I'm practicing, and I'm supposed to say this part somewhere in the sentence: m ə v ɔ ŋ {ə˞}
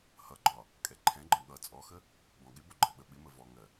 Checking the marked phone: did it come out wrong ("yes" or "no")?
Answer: yes